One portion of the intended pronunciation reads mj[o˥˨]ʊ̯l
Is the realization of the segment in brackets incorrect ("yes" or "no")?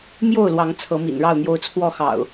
no